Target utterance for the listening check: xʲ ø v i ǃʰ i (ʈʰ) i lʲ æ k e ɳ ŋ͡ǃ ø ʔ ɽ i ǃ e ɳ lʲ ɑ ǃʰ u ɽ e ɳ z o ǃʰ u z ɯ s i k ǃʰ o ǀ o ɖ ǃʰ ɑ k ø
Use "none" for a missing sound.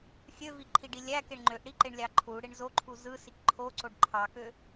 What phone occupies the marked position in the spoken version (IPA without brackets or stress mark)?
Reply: ɖ